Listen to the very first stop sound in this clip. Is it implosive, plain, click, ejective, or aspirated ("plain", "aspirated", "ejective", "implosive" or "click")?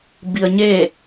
plain